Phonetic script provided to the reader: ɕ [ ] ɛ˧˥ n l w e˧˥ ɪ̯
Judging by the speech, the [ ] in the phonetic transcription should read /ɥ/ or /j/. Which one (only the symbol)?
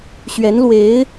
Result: ɥ